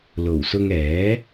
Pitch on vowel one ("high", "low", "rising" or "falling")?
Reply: low